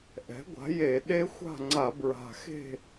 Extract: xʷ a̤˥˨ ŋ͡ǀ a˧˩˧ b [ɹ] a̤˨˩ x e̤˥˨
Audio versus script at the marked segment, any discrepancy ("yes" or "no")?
no